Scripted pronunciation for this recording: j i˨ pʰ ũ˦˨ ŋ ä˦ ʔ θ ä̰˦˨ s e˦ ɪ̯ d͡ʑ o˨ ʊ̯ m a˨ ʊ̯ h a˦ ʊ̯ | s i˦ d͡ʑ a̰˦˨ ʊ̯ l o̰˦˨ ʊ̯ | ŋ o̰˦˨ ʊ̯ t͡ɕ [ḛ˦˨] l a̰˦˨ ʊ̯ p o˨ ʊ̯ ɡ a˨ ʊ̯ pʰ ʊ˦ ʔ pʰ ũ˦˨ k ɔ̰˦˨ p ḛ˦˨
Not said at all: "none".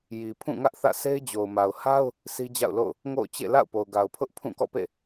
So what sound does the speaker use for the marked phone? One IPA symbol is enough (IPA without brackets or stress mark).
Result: ḛ˦˨